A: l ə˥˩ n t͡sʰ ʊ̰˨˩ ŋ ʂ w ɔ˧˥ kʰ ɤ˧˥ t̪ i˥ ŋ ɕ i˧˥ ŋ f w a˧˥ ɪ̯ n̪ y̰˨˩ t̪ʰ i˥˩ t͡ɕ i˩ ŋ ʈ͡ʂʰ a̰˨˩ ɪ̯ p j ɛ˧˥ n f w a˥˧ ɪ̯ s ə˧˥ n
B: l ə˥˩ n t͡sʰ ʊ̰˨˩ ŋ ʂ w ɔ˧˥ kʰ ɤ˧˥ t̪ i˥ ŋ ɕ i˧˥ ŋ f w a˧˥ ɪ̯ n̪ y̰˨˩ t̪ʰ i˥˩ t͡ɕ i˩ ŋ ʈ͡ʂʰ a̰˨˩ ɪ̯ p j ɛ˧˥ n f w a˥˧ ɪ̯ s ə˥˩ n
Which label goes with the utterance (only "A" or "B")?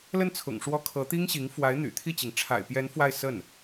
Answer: B